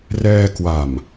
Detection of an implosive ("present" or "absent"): absent